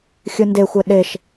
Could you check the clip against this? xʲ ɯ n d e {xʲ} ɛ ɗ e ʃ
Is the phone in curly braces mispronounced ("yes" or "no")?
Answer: yes